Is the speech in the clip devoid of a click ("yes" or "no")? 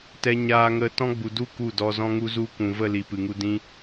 yes